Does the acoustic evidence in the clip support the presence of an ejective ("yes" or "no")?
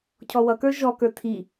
no